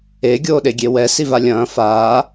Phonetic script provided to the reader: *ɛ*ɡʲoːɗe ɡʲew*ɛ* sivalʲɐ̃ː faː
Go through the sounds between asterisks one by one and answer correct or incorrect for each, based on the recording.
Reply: incorrect: e, correct

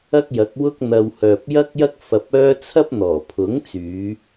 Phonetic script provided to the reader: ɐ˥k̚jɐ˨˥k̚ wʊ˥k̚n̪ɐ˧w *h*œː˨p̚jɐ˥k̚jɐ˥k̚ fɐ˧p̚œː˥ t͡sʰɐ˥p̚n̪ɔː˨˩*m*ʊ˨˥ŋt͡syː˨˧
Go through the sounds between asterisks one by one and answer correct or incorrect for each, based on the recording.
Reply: correct, incorrect: pʰ

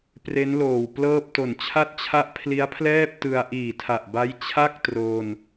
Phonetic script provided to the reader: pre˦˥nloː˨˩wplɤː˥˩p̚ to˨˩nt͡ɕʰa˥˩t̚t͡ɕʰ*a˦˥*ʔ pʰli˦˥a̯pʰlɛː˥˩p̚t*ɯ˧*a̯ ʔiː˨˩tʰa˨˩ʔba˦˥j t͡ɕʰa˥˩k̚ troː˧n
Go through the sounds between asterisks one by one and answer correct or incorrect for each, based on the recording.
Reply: incorrect: a˥˩, correct

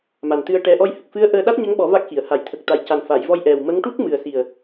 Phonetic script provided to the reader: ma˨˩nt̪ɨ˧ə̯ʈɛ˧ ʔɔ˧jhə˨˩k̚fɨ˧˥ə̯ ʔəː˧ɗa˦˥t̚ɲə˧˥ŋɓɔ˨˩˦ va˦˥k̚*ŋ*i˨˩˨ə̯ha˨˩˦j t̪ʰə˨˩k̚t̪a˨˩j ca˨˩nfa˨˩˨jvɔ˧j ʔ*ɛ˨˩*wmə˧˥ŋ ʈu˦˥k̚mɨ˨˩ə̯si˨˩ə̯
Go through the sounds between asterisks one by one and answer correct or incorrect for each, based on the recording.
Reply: incorrect: x, correct

